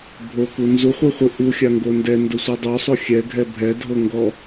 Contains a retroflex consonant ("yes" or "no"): no